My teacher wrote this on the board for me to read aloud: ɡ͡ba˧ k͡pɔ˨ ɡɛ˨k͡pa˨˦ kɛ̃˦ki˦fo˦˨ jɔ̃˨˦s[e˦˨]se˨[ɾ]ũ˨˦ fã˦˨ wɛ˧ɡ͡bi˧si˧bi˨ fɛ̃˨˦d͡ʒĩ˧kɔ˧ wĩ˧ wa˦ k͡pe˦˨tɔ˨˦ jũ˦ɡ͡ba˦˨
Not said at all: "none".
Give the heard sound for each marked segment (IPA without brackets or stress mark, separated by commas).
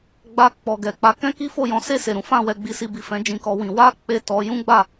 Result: e˦˨, ɾ